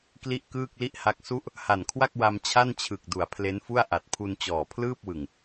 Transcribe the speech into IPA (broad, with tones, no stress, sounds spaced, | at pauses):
k l i˥˩ ʔ k ɯː˥˩ k̚ l i˥˩ ʔ h a˦˥ k̚ s u˦˥ ʔ | h a˨˩ n kʰ w a˥˩ k̚ w a˧ m t͡ɕʰ a˥˩ n t͡ɕʰ ɯ˨˩ k̚ d u˩˦ a̯ pʰ l e˦˥ n f u˥˩ a̯ ʔ a˨˩ t̚ pʰ u˧ n t͡ɕ ɔː˨˩ pʰ l ɯː˥˩ p̚ w ɯ˨˩ ŋ